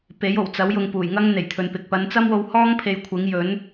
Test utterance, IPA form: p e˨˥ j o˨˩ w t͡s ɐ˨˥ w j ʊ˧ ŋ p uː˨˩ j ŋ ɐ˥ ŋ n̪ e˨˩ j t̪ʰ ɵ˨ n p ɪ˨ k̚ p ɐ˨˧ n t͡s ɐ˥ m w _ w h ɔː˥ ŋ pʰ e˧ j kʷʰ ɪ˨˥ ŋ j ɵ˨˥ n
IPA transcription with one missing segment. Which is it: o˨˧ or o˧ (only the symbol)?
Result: o˧